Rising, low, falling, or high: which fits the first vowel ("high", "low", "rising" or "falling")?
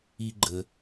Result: high